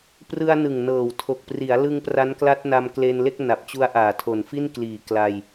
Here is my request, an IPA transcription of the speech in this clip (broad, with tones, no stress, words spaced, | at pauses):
prɯ˧a̯nɯ˨˩ŋnɤː˨˩w tʰo˨˩k̚pri˩˦a̯lɯ˧ŋ pra˦˥nkla˦˥t̚na˧m kle˧nle˥˩k̚ na˨˩p̚t͡ɕu˦˥a̯ʔaː˨˩ tʰo˨˩nfi˥˩n kliː˨˩ kla˧j